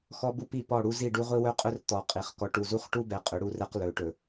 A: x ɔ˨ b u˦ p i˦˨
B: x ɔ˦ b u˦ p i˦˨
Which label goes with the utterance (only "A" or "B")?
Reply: B